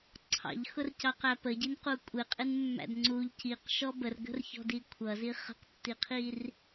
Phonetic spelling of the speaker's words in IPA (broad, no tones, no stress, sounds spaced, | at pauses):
ǀʰ ɑ̰ ʎ x ʊ r c ɑ q æ p ə ɟ i n q u kʷʼ ɪ qʼ ɪ n mː æ̰ d ŋ͡ǀ u ʎ c i q ʃ ɔ b ə r ɡ ə̤ r ç ɔ̤ d i kʷʰ ʌ z i χ ə̤ q tː i qʰ i r